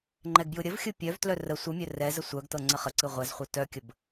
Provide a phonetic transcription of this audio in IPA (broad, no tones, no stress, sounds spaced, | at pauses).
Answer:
ŋ͡ǃ ɛ ɡ b j ɯ ɾʲ ə v xʲ ɯ pʲ œ v t l œ r ə sʷ ɯ mʲ œ r ɛ z ə sʷ œ ɡ t ɤ ŋ͡ǀ ə χ ə ǀ ɯ ʁʷ ɛ z χʷ œ t œ kʲ ə b